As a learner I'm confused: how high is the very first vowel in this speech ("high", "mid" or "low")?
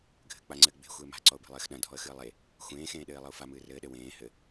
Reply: mid